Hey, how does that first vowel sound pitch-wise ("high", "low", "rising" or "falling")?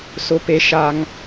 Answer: high